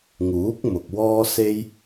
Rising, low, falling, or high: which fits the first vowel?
rising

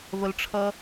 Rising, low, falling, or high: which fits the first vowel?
low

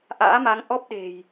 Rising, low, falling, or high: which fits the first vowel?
rising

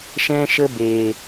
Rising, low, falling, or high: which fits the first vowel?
high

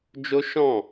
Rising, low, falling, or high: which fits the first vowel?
high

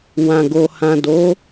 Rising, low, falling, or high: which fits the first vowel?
low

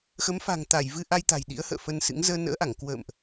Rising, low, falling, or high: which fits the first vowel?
rising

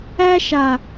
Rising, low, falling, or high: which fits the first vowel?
high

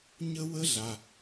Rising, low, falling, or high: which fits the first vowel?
high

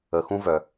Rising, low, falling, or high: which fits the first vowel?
rising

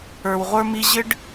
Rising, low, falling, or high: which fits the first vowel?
low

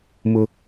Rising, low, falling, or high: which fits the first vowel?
high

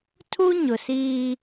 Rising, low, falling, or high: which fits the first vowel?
high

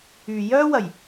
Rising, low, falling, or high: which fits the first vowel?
low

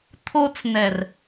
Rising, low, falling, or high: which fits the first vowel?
high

